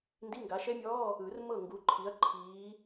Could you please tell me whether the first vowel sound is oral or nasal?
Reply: oral